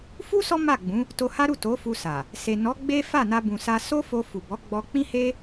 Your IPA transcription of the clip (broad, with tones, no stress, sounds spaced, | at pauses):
f u˦ s ɔ˦ m a˦˨ ɡ͡b ũ˨˦ | t o˧ h a˦ ɾ u˦˨ t o˨˦ f u˧ s a˨ | s e˨ n ɔ˨˦ ɡ͡b e˦ f a˦˨ n a˧ b ũ˨ s a˧ s o˦ f o˧ f u˨ b ɔ˨˦ ɡ͡b ɔ˧ k͡p ĩ˦ h e˦